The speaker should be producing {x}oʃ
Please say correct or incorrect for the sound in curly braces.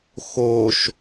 correct